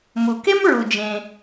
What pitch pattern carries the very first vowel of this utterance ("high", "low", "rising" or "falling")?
low